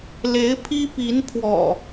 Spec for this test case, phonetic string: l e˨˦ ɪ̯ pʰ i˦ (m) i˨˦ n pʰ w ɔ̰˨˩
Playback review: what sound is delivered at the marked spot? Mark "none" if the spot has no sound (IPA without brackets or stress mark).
p